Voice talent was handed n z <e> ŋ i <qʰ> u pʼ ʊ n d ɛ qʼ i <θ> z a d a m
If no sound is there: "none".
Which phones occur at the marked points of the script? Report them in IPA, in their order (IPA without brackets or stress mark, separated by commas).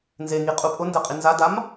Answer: e, qʼ, n